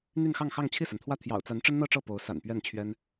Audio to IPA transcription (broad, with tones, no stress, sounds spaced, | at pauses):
n̪ y˥˧ n x ɑ˥˧ ŋ x ɑ˥˧ ŋ t͡ɕʰ i˥˩ s a˩ n t̪ʰ w ä˥˩ t̪ʰ j ɑ̰˨˩ ʊ̯ t͡s a˧˥ n ʈ͡ʂ ə˥ n n̪ ɤ˥˧ ʈ͡ʂ ɤ˥˩ p o˧˥ ʊ̯ s a̰˨˩ n p ɥ ɛ˥˩ n t͡ɕʰ ɥ ɛ˥ n